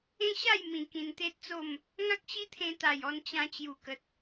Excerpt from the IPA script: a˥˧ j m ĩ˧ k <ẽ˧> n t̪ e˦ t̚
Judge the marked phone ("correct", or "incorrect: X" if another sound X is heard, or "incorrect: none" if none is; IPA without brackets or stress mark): incorrect: ĩ˧